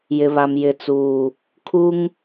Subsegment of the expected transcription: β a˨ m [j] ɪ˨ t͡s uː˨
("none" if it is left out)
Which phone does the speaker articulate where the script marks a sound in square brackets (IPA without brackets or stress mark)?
j